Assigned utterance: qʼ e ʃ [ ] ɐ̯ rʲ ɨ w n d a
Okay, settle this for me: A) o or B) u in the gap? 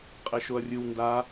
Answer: A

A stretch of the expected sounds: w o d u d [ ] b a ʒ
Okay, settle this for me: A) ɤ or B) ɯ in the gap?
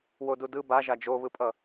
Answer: B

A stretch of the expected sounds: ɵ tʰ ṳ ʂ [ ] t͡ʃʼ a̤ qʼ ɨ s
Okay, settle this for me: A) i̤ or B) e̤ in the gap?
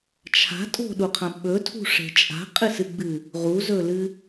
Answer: B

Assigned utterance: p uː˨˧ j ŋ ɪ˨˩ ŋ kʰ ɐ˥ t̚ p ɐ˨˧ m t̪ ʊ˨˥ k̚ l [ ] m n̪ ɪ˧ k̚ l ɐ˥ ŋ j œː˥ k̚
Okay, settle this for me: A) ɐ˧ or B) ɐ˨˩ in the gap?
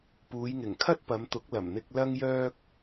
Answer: B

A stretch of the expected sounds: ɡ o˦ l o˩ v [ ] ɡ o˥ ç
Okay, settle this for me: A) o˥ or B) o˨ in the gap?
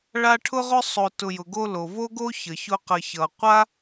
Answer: A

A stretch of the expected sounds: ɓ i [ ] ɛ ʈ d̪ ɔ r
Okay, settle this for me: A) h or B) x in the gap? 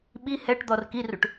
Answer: A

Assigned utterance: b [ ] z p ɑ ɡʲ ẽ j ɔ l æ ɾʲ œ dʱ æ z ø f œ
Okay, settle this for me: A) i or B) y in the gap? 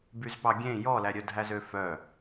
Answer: B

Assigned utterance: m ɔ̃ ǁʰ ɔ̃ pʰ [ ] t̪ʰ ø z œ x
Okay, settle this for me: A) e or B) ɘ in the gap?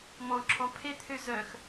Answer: A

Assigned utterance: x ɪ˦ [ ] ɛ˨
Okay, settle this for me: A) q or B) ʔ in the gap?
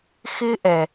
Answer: B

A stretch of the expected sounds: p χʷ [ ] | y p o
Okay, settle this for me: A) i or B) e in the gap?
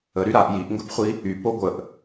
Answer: A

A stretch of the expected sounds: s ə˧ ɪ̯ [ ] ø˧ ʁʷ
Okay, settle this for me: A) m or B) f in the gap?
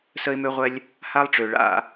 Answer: A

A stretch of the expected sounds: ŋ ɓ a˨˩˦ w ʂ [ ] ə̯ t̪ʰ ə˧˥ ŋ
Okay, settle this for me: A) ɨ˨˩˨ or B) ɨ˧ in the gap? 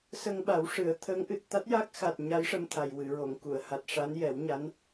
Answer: A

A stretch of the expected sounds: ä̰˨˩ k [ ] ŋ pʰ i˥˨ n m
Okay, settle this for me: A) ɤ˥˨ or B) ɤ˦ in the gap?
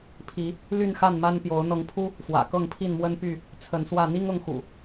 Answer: A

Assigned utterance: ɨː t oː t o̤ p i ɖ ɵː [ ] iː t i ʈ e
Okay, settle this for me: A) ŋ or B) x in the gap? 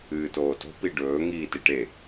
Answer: A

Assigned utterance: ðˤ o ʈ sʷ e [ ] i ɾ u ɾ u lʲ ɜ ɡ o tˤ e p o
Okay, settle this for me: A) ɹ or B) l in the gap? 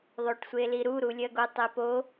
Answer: B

